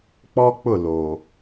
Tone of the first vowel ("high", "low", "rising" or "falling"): high